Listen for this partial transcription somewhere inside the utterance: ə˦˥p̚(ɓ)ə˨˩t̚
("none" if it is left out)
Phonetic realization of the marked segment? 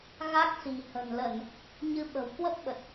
ɓ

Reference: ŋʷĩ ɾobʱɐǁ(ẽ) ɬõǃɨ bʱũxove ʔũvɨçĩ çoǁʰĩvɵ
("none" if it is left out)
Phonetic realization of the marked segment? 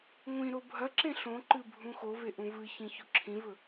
ẽ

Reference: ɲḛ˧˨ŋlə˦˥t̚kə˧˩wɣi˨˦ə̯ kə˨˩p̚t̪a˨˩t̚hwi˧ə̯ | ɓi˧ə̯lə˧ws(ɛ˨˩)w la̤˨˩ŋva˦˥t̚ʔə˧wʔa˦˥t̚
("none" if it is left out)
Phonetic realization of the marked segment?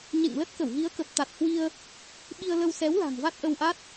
ɛ˨˦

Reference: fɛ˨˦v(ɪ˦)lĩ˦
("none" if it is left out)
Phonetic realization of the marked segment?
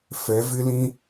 ɪ˦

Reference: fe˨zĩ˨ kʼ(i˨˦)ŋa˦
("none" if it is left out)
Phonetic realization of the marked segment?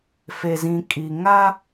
i˨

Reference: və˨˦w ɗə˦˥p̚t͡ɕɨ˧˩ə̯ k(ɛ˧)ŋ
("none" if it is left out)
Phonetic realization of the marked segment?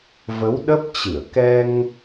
ɛ˧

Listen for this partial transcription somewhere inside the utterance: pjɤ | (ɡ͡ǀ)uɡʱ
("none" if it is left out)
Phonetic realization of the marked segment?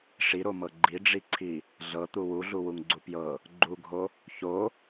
ɡ͡ǃ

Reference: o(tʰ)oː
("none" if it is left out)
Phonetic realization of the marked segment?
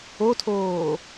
tʰ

